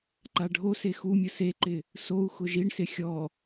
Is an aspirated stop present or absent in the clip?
absent